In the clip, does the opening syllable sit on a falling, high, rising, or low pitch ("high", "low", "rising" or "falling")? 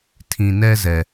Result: low